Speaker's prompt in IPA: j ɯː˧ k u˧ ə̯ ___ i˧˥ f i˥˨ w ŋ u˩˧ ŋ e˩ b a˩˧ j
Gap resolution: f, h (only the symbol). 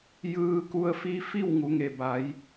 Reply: f